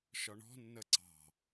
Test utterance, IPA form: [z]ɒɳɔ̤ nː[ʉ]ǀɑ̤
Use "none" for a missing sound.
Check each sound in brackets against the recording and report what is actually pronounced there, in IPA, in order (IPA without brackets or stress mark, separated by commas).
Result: ʃ, ə